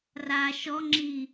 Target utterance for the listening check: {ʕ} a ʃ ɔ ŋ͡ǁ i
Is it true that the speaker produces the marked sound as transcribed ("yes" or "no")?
no